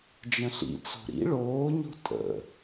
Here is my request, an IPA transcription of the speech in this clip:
d͡ʒ ə̃ ɬ ḭ t͡s o̤ ɾ ḭ ɭ oː ɲ o̤ tʼ ə̰

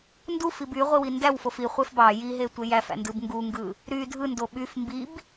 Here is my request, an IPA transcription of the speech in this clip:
n d u f i b y ʁʷ i w i n d æ w f o f i χʷ e f b ɑ j i ɦ e tʷ e j æ f æ̰ n d ɯ b ŋ ɡ u ŋ ɡ ɯ | ɾ y dʱ ɯ n d o ɓ y f m b i b

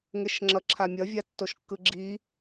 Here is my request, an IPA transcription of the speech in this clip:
ŋ e ʃ ŋ͡ǁ ʌ ǁʰ a mʲ ʌ vʲ a tː o ʃ kː ɯ ɡ͡ǁ i

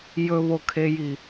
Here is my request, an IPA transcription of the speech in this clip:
j ɵ β o kʰ e j i

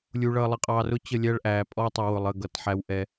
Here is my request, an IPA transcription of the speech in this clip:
lʲ u˨ ɭ ʌː˨ lˠ ɪ˨ qʼ ɑ˨ r ʊ˦ t͡ɕ ə˦˨ lʲ æ˦ ɭ ʔ æː˨ pʼ ɔ˦ tˤ u˨ w ʊ˨ lˠ ə˦˨ ɡ ʌ˨˦ t ħ æ˦ w ʔ ɛ˦

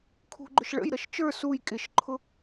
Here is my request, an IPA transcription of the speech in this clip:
kʰ ṳ ɡ͡ǃ ʊ ʃ ɭ ə̰ j ɾ ʌ ʃ t͡ʃ ə˞ s u j kʼ ɪ ʃ ǃʰ ʊ

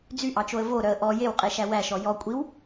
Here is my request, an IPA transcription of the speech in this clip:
d͡z y ʔ ɑ t͡ʃ o ə̯ v o ɾ œ ə̯ ʔ ɔ j e w qʼ e ʃ æ w æ ʃ ɔ j ɔ kʷʼ i w

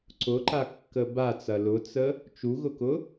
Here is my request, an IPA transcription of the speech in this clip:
ǀ ʊ ǃ a kː ə b a t͡s ɐ l ʊ t͡s ə | t͡ʃ u ɣ ʊ k ʊ

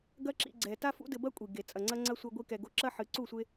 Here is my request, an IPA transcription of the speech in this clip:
ɡ ɐ˦ ǁ ḭ˧ ɡ͡ǀ ɛ˨ t a˦ f ṵ˦ d ɘ˧ b ɐ˦ kʷʼ i˨ ɡ e˨ t͡sʼ ɐ˨ ŋ͡ǀ ɐ˦ ŋ͡ǀ ɐ˦ sʷ ɐ˧ ɡʷ i˧ k ɛ˨ ɡ o˧ ǁ ɐ˦ ħ ɨ˨˦ ǀ u˦˨ sʷ e˦

